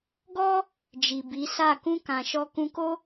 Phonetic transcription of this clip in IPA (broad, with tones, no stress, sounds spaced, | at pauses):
ɡ ɔ˦ | d͡ʒ i˨ b i˨˦ s a˦˨ k ũ˧ k ã˨ ʃ ɔ˧ k ũ˧ k o˦